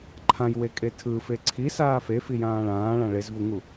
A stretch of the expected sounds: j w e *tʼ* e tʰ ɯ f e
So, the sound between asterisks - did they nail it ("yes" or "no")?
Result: no